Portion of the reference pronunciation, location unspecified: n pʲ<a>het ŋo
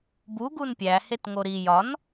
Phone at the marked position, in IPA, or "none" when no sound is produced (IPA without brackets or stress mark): æ